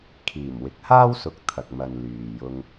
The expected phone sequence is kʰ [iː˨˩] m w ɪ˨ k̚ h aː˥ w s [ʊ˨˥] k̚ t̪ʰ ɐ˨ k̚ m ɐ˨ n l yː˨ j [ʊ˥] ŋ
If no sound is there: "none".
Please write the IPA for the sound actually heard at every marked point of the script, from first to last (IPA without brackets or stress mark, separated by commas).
iː˨˩, ʊ˨˥, ʊ˧